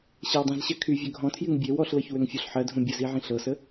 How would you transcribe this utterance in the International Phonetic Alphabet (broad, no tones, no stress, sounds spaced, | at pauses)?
ɕ ɤ w dˤ ĩ z ɕ ɜ kʰ y vʲ ø ɡʱ ɔ̃ tʰ j y ŋ bʲ e w ɔ ɬ l ɤ ç w ø ŋ fʲ ɔ ɬ ħ ɜ dʱ ũ bʲ ə z i ʕ ĩ ɬ ɤ s ə